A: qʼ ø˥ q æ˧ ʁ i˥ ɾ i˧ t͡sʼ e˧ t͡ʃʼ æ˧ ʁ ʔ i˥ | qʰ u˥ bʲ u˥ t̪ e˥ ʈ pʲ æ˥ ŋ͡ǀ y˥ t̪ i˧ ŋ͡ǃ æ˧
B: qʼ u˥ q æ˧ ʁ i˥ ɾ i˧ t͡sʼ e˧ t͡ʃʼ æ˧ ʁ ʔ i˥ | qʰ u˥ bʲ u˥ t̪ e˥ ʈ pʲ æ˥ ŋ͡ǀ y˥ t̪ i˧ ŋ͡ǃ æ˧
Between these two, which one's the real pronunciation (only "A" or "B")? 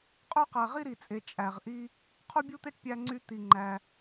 A